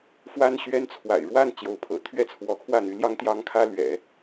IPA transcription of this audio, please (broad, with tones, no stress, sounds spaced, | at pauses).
f w a˥ n ɕ ɥ ɛ˥ n t͡sʰ w a̰˨˩ ɪ̯ ɻ w a˥˩ n t͡ɕ j o˧˥ ʊ̯ pʰ ɤ̰˨˩ t̪ʰ ɥ ɛ˥ t͡sʰ w ɔ˧˥ kʰ w ä˥˩ n̪ y˧˥ l j ɑ˥ ŋ t̪ j ɑ˥ ŋ kʰ ä˥ l ɥ ɛ̰˨˩˦